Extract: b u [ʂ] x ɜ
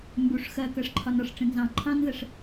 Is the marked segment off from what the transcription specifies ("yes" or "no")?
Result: no